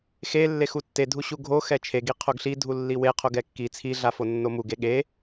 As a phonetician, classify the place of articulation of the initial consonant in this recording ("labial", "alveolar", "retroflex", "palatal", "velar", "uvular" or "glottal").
velar